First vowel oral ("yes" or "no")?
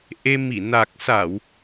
yes